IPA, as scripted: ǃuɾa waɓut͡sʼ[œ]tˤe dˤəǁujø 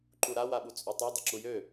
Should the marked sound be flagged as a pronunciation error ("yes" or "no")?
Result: no